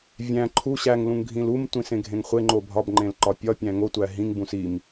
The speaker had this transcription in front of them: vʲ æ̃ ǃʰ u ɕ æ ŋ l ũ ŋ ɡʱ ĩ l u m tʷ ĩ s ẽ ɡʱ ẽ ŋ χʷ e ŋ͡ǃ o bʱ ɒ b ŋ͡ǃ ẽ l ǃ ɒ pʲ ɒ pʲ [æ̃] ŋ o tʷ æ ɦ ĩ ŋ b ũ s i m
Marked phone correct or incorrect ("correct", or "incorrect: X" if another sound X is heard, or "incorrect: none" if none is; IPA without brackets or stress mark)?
correct